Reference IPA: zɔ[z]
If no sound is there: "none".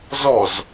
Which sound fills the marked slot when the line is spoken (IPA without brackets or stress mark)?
z